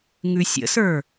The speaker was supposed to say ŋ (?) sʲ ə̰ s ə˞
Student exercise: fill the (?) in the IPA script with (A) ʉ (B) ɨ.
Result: A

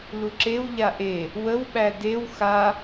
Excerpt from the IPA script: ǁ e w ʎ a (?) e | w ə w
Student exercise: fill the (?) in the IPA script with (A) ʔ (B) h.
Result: A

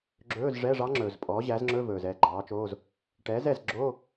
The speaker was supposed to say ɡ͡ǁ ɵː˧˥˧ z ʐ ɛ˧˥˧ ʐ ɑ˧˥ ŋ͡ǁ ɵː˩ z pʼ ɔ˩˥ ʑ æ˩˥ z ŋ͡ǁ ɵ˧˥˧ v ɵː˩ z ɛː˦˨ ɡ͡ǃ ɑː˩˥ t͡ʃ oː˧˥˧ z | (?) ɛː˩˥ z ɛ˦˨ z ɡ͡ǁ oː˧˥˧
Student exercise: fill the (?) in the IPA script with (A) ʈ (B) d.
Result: A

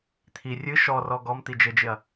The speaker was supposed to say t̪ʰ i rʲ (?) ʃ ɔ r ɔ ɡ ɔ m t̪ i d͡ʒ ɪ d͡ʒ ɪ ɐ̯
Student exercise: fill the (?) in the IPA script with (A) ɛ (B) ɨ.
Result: B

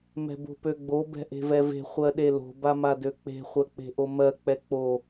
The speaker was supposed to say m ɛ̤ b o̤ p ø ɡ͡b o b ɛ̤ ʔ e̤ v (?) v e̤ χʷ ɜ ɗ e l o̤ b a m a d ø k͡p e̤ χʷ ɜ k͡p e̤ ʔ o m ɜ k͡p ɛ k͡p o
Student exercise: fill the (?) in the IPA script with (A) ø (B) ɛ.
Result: B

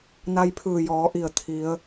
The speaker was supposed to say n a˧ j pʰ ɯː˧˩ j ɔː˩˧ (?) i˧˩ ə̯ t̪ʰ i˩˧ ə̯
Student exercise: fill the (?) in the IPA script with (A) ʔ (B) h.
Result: A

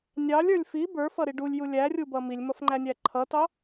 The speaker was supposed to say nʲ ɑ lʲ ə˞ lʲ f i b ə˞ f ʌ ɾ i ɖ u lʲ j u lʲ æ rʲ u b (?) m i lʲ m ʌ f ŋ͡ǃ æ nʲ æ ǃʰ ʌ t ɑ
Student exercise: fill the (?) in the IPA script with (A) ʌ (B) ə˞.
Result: A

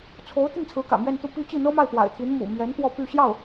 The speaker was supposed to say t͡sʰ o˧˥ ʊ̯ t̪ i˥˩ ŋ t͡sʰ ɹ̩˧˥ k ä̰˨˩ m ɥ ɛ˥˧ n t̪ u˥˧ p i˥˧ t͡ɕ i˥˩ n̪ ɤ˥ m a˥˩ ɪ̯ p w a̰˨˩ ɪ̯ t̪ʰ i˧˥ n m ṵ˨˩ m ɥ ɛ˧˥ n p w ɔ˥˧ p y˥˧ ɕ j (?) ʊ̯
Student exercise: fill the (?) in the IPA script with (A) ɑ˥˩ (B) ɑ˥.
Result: A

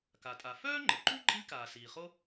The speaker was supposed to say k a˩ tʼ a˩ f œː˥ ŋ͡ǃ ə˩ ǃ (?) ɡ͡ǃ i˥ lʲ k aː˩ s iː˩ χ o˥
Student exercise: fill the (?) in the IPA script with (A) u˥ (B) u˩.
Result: A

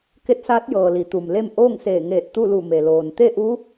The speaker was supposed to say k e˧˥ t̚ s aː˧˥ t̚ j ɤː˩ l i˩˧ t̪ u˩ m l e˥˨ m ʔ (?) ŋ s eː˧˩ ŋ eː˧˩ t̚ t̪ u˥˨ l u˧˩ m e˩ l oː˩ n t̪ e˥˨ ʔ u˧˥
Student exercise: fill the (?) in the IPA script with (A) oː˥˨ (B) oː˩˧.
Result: A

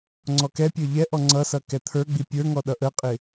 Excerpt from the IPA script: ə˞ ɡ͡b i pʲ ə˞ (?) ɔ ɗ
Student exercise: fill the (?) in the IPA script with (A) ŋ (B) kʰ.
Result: A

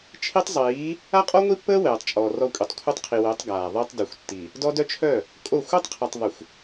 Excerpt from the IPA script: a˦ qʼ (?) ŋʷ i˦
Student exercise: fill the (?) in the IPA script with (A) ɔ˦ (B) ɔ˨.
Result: A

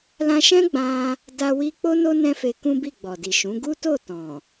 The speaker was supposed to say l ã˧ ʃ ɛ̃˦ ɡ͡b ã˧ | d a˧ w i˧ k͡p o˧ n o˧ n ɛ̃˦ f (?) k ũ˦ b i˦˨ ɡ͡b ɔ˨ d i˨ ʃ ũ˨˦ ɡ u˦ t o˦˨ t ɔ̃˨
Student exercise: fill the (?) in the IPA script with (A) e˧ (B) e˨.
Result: A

